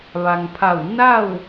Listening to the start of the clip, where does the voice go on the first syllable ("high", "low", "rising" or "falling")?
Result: low